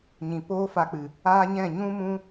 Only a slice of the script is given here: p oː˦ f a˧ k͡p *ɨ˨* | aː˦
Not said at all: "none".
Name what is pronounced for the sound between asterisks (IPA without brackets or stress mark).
ɨ˨